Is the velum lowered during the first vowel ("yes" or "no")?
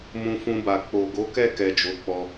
yes